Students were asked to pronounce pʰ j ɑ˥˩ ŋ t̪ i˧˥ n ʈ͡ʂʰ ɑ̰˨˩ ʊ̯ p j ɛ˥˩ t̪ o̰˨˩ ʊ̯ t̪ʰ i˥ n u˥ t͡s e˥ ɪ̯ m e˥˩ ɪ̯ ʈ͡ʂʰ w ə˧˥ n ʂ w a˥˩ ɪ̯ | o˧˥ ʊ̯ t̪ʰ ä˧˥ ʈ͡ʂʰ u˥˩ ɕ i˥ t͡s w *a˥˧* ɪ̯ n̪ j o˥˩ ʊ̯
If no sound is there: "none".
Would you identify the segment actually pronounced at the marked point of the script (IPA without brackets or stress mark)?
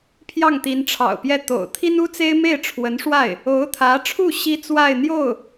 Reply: a˥˧